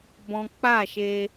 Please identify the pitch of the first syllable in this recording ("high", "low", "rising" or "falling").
high